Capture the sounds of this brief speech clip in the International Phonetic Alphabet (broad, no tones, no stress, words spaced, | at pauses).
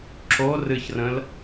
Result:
ǁo rɨçrə̃l